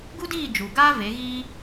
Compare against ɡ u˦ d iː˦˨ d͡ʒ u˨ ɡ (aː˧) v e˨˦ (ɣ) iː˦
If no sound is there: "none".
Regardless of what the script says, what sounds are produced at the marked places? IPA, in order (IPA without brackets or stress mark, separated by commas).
aː˦, ɣ